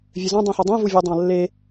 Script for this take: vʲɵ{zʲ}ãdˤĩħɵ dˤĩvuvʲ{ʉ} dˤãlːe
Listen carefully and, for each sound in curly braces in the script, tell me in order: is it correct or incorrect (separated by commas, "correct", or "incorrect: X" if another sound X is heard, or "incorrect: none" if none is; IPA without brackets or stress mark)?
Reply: incorrect: z, correct